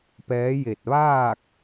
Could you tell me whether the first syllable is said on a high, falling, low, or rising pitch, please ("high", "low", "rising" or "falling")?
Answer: rising